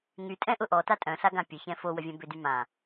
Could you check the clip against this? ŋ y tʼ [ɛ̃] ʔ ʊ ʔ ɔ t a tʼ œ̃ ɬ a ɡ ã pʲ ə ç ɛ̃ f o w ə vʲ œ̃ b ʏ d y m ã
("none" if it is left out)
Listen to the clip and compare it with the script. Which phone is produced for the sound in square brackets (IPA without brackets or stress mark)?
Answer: ɛ̃